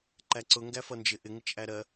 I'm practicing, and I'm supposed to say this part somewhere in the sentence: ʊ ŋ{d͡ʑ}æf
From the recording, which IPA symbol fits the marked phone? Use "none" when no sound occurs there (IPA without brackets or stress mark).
ɡ